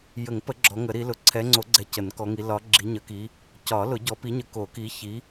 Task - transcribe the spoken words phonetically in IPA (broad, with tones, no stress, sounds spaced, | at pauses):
j ə˨˩˦ ŋ p ə˨˩˦ ɡ͡ǁ ɔ˨˦ ŋ ə˨˩˦ ɾ i˨˦ l ʊ˨˦ ǀʰ ɛ˨˦ ŋ͡ǀ o˨˩˦ ɡ͡ǀ ɛ˨˦ c ə˨˩˦ n k ɔ˨˦ ŋ i˨˦ l ɒ˨˦ ɡ͡ǁ i˨˦ ɲ ə˨˩˦ k i˨˦ | c ɒ˨˩˦ l ʊ˨˩˦ ɟ ɔ˨˦ p i˨˦ ɲ ə˨˦ k o˨˩˦ k i˨˦ ç i˨˦